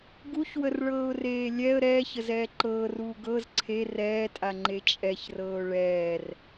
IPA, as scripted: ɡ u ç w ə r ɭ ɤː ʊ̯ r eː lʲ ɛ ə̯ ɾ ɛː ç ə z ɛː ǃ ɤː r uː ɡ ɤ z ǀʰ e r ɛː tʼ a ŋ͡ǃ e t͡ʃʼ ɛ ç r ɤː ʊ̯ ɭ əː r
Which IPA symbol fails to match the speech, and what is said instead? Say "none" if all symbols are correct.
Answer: əː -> ɛː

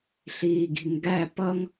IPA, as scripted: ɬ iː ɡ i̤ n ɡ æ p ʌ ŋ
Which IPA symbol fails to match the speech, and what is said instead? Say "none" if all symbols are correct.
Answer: none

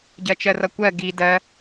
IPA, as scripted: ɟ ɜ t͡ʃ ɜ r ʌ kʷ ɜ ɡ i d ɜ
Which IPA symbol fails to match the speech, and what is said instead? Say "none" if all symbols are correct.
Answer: none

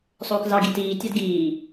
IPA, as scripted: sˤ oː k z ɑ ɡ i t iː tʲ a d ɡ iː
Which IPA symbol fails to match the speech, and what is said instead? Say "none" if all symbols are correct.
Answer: none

